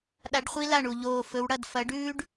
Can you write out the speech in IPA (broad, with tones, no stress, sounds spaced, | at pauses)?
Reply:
ɗ a˧˥ ɖ χʷ i˥ l a˦˨ ɳ u˦˨ ʎ oː˦˨ f ɵ˧˥ w ɽ ɐ˦˨ d f ɐ˧˥ ɖ ʉː˥ ɖ